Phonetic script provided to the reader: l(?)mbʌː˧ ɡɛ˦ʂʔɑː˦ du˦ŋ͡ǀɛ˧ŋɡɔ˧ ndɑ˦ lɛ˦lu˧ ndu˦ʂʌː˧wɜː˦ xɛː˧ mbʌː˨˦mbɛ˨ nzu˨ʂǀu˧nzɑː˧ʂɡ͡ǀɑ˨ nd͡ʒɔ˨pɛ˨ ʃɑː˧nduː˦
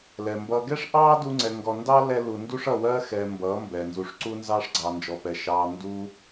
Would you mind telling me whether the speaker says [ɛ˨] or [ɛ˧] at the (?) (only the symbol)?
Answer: ɛ˨